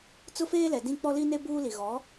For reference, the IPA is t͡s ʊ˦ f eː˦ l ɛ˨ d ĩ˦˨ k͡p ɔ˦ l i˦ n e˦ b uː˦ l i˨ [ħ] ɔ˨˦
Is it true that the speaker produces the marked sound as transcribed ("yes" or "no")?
no